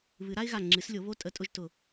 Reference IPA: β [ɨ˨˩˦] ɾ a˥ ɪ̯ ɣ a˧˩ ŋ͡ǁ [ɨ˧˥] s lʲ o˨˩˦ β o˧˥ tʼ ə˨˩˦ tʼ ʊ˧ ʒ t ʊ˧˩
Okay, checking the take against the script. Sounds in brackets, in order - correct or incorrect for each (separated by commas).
correct, incorrect